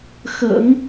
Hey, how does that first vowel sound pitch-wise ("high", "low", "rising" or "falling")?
low